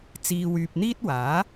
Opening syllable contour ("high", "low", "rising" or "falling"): low